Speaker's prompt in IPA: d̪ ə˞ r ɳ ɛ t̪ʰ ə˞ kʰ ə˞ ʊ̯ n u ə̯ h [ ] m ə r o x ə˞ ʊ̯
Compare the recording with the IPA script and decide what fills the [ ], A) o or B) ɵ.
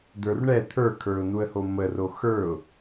A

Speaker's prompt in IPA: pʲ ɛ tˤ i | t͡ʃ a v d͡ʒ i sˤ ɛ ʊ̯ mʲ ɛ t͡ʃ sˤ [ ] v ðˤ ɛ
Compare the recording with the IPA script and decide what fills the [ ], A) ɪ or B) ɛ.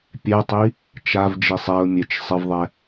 A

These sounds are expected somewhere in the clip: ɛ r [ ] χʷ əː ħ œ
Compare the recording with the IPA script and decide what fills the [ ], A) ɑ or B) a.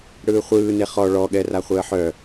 B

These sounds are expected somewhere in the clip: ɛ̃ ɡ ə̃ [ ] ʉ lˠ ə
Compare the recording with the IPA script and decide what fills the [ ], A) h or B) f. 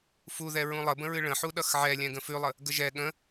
B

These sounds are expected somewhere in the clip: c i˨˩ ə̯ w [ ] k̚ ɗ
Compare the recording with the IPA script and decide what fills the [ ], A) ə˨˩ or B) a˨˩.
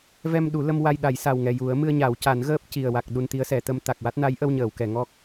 B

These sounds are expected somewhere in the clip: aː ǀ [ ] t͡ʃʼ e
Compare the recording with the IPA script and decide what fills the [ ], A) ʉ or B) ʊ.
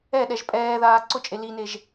B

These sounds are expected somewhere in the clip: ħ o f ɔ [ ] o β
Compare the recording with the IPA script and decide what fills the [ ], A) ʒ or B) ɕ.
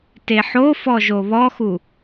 A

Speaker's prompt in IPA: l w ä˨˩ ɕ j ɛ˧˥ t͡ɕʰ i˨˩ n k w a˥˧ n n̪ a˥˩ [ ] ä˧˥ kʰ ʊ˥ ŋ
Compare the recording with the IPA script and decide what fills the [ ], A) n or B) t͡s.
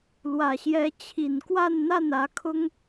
A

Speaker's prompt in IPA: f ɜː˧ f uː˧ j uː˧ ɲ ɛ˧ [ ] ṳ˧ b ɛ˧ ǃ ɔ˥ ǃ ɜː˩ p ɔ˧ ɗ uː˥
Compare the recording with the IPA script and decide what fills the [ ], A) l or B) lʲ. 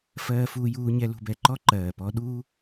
A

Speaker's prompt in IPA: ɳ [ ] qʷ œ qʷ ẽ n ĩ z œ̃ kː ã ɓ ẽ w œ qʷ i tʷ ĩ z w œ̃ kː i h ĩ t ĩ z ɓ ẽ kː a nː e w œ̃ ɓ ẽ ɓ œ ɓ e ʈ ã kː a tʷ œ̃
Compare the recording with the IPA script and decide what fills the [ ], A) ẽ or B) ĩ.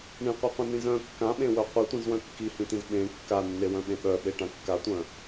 B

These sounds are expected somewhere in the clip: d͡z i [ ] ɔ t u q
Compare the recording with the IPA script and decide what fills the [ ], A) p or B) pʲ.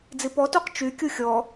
A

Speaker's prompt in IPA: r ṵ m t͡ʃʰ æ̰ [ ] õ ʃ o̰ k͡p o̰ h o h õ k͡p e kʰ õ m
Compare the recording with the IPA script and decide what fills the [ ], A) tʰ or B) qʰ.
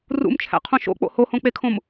B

